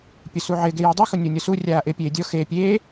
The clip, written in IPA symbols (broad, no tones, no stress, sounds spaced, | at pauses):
pʲ ʊ s u ʕ ɪ ɡ e j ɪ dˤ i x ʊ nʲ o nʲ ɔ s u rʲ aː ʔ ɪ pʲ eː dʲ ɔ x e pʲ eː